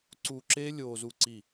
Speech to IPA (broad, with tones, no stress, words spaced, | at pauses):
ǀuː˧ǁeː˦ lʲoː˧zu˦˨ǀi˦˨